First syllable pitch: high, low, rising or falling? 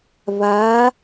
rising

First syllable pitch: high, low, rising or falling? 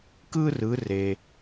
high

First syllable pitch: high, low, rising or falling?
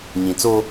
low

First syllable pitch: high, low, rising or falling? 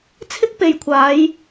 high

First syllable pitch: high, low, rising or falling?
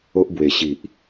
high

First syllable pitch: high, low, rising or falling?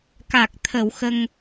low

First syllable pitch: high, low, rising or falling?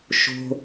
low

